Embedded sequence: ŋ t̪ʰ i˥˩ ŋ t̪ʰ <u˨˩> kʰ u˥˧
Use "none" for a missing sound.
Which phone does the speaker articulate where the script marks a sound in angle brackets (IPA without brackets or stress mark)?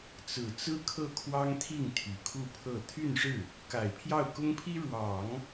y˨˩